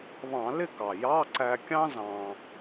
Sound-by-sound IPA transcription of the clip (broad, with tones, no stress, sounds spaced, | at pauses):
β ɑ̃˧˩˧ l ɪ˥˨ k ɑ˨˩ j ɑ˧˥˧ ǀ æ˧ kʲ ɑ̃˥ z ɑ̃˧